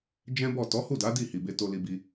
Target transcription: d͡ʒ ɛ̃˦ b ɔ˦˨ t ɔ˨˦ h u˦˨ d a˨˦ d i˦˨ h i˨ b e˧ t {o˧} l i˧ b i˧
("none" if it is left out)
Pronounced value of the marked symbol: o˧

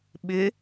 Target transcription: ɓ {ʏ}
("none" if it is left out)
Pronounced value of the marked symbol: ʏ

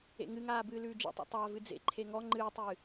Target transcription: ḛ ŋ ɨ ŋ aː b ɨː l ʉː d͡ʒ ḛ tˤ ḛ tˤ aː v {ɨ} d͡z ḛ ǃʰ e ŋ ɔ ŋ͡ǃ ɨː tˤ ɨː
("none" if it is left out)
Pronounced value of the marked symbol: ɨ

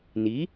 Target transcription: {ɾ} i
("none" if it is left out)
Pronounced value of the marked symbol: n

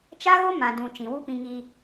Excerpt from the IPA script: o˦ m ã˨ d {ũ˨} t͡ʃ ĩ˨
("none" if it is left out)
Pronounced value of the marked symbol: ũ˨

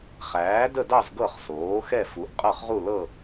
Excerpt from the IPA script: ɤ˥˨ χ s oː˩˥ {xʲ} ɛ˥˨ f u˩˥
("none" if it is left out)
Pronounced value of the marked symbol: x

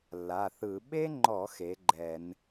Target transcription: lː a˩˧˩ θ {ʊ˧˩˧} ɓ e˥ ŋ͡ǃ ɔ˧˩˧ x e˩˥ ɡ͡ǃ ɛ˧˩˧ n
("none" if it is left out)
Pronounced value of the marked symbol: ɯ˧˩˧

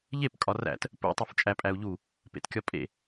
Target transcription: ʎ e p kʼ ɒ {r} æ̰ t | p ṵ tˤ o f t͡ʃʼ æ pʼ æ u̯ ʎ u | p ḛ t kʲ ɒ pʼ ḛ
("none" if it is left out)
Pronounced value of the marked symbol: r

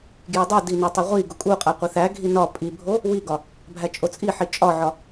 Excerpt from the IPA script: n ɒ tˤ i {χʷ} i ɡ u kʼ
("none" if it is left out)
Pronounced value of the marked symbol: ʁʷ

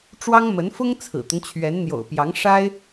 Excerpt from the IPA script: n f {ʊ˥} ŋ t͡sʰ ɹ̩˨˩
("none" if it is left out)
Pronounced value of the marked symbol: ʊ˥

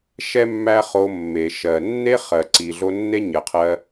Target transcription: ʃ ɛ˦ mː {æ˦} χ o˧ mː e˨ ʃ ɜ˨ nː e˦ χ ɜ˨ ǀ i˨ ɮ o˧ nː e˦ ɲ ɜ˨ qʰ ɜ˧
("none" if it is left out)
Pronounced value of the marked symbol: æ˦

